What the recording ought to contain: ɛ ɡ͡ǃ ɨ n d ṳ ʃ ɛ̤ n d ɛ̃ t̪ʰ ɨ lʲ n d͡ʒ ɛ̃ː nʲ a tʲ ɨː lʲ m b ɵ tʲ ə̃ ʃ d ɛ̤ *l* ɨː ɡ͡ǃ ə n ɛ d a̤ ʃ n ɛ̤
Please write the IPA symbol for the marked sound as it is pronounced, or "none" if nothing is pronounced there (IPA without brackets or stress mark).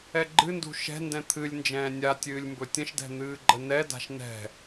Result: n̪